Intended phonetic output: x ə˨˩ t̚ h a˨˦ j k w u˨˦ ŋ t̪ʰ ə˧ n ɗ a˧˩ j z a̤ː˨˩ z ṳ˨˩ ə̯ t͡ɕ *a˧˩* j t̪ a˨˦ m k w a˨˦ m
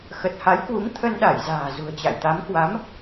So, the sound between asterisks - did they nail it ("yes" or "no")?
no